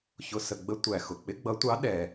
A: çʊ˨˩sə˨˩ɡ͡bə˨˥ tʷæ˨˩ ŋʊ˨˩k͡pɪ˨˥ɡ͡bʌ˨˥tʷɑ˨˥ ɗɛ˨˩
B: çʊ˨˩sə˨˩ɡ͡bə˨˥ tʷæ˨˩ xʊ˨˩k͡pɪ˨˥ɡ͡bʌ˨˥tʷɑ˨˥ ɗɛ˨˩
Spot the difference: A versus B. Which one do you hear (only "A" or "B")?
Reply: B